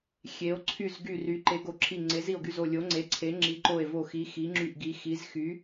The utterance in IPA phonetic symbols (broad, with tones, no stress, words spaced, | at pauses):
xʲe˩˧o̯ ǀʰy˨˩z ɡy˨˩ry˩˧ ǃe˩˧ɡo˩˧ǁʰi˨˩ ŋ͡ǀe˩˧zi˨˩o̯ɡy˨˩z o˨˩lʲo˩˧ŋ͡ǀe˩˧ǀʰe˩˧ ŋ͡ǁi˩˧ǃo˨˩e̯vo˨˩xi˩˧ xi˩˧ŋ͡ǁy˨˩ʔɡi˩˧ xi˩˧z xy˩˧